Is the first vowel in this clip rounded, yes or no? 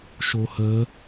yes